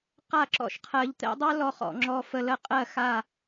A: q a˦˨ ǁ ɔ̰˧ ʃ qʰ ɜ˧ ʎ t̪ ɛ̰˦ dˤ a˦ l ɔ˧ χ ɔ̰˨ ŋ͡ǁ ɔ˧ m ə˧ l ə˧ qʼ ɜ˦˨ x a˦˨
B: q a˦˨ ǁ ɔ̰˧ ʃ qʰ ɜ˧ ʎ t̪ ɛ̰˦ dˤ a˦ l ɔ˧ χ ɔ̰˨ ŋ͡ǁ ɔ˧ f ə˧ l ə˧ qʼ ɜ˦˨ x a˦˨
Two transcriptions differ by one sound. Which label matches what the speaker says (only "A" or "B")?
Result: B